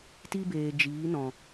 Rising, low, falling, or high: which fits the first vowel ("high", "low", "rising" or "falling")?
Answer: high